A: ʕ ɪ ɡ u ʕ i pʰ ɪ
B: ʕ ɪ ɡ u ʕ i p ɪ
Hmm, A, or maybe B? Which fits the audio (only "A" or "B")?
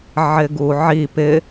B